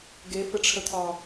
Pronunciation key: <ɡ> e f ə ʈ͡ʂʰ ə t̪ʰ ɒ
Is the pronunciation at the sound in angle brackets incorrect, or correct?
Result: correct